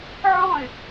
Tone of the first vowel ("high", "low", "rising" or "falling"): falling